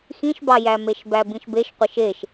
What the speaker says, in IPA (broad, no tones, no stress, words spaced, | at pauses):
xĩʃbɑjæmeʃ bæbĩʃbeʃqʷeʃ eʃ